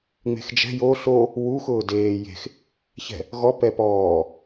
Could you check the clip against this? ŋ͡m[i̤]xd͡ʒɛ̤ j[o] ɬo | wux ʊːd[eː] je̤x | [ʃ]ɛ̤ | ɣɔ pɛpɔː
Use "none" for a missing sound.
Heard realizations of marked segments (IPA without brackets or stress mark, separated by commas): e̤, o, eː, ç